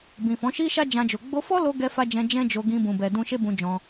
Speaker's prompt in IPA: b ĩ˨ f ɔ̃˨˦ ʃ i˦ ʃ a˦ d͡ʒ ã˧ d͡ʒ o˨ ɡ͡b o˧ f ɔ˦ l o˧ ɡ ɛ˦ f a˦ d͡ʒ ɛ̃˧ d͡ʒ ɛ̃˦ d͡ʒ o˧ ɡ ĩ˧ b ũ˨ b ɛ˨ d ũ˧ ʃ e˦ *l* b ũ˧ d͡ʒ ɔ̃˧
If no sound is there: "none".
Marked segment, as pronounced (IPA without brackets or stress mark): none